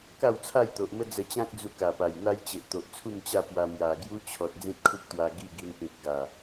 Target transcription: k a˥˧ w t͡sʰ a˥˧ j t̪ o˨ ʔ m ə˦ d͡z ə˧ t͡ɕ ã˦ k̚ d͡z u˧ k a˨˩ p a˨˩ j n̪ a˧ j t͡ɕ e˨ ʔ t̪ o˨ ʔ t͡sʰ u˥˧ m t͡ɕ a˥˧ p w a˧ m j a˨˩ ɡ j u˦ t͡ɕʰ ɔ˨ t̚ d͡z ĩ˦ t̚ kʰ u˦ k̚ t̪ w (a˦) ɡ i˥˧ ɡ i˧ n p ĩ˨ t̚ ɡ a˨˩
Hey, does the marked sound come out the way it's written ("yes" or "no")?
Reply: no